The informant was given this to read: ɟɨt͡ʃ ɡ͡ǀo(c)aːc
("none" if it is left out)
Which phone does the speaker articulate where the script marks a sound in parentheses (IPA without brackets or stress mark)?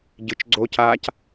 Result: c